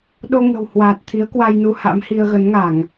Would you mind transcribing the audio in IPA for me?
ɗ o˧ ŋ ə̤˨˩ w h w aː˨˩ t̚ t̪ʰ i˨˦ ə̯ k w a˧ j n u˧ h a̰˧˥ m h i˧ ə̯ ɣ ə˨˦ n ŋ a˧˩˨ ŋ

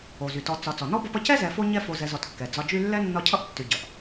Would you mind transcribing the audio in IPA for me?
o˩ z y˩ t ɔ˨ t͡s ɒ˨ t͡s ɔ˩ n ɔ˥ b ʌ˦ p ʌ˦ c ɛ˥ z ɛ˨ f o˦ ɲ ɛ˦ f o˨ z ɛ˨ z ɔ˩ t kː ɛ˩ d͡z ɒ˨ d͡ʒ y˦ lː ɛ˥ nː ɒ˦ cʰ ʌ˥ ʔ tː y˨ ɟ ʌ˩ ʔ

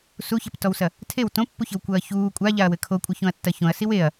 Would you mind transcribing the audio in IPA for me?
s u ç ɛ p t ɔ w s ɐ | tʰ e w t õ pː u ç ɘ w kʷ ɐː ç uː kʷʼ a ʎ a ɐ̯ w ɘ kʰ o kʷʼ ɘ ç õ ɐ̯ tː ɐ ç õ ɐ̯ s i w e ɐ̯

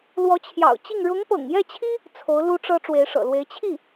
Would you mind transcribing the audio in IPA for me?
l w ɔ˧˥ t͡ɕʰ j ɑ̰˨˩ ʊ̯ t͡ɕ i˥˩ ŋ ɻ ʊ˧˥ ŋ p ɤ̰˨˩ ŋ j ɛ˥˩ t͡ɕʰ i˥ | t͡sʰ o˧˥ ʊ̯ l u˥ ʈ͡ʂ ɤ˥ ʈ͡ʂ w e˧˥ ɪ̯ ʂ ɤ̰˨˩ l w e˧˥ ɪ̯ t͡ɕʰ i˥˩

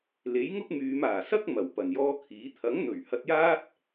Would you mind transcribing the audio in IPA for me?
l e˨˥ j ŋ ʊ˥ k̚ m yː˨˧ m aː˨˩ s ɐ˥ k̚ m ɐ˨˩ w p ɐ˨˩ n j ɔː˥ kʰ iː˨˥ t̪ʰ ɐ˨˥ ŋ n̪ ɵ˨˩ ɥ h ɐ˧ t̚ j aː˥ t̚

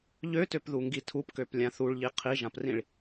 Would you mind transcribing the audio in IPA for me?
ʎ ø t ø p ð u ŋ ɡ i tʰ u p k ø p lʲ ã θ u ɭ ʎ i qʰ i ʒ ã p r ĩ ɭ

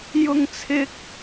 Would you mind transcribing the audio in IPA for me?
j ʊ˥ ŋ t͡sʰ ɪ˥ k̚

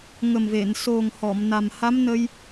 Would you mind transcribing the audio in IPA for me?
ŋ ə˨˩ m v e˨˩˨ n s o˨˩ ŋ h ɔ˨˩˨ m n a˨˩ m h a˧˥ m n ə˧ j

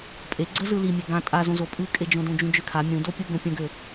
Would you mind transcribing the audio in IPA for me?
pʼ e ɡ͡ǀ ə z ɯ l i mʲ e ɡ ã tʼ a z õ z o pʼ ɯ kʼ e d͡ʒ õ d õ d͡ʒ ũ d͡ʒ ø kʰ a mʲ ũ d o pʲ u ɡ ə̃ pʲ ə̃ ɡ ø

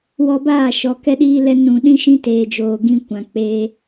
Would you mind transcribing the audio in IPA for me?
w ɔ˧ b aː˦˨ ʃ ɔ˨ k ɛ˧ ɗ iː˧ l ɛ˧ n ũ˨ ɗ ĩ˧ ʃ ĩ˦ t eː˨ d͡ʒ oː˨ ɡ ĩ˧ kʷ ã˨ k͡p eː˧

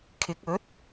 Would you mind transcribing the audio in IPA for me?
kʰ ɪ˨˥ k̚ ɵ˨˥ t̚

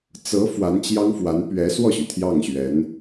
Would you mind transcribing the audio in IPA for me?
t͡s ɤ˧˥ f w a˧˥ n t͡ɕ j ɑ˥ ŋ f w a˧˥ n p ɥ ɛ˧˥ s w ɔ˥˩ ɕ y˩ t̪ʰ j ɑ˥˩ ŋ ɕ ɥ ɛ˧˥ n

